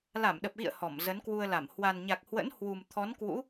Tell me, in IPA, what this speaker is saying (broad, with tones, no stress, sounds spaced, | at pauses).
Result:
l a˧˩ m ɗ ə˨˩ p̚ ɣ ḭ˧˨ ə̯ h ɔ˧˩ m z ə˨˦ n k w u˧ ə̯ l a˧˩ m h w a˨˩ n ɲ a˨˩ k̚ h w ə̰˧˥ n h w u˨˩ m t̪ʰ ɔ˨˦ n k w ṵ˧˥